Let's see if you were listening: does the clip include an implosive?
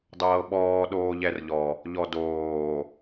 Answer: yes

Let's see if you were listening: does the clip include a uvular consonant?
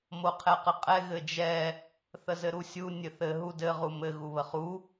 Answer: yes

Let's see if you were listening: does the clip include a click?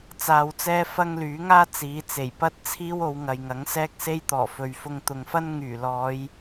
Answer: no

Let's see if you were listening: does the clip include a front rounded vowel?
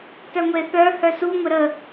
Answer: yes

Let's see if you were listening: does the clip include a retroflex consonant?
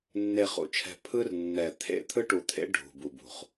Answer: yes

